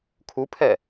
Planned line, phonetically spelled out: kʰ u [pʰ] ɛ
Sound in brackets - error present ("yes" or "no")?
no